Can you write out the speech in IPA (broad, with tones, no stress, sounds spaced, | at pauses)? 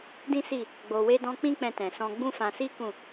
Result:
d ĩ˦ s i˦˨ | ɡ͡b o˨ w e˧ d ɔ̃˧ k͡p ĩ˦ k͡p ɛ̃˧ t ɛ̃˨ s ɔ̃˧ ɡ͡b ũ˦ f ã˧ s i˦ k ũ˦˨